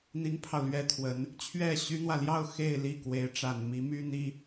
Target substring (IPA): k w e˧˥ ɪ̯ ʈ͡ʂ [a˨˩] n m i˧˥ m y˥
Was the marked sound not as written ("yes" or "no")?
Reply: no